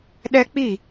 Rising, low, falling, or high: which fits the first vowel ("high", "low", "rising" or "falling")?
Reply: high